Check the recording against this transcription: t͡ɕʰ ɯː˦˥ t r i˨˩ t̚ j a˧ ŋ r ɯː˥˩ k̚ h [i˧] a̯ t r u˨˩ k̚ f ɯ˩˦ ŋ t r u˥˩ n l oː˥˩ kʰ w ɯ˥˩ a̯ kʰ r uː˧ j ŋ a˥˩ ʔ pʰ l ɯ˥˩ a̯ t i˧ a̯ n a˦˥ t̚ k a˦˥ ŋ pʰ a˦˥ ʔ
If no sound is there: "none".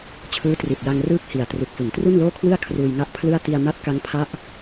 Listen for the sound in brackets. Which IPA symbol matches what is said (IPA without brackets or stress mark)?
i˨˩